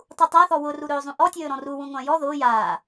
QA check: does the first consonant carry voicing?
no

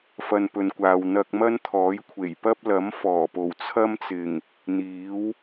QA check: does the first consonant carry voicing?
no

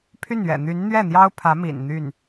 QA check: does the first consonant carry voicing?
no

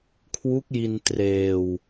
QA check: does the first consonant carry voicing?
no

